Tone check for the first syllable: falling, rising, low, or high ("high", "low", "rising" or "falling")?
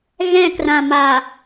falling